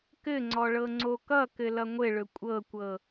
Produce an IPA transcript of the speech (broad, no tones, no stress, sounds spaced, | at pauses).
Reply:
k ɘ ŋ͡ǀ ɔ ɭ ɤ ŋ͡ǀ o k ʌ k ɘ l ʌ ŋʷ ɘ ɭ ɵ kʷʼ ɤ kʷ ɤ